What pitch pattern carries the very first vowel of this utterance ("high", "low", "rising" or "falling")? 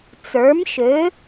rising